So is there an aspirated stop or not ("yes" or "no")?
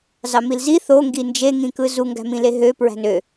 no